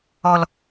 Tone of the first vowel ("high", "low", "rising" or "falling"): high